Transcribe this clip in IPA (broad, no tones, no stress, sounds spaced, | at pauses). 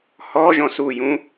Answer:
h ɔ ʒ ɔ̃ s u j ũ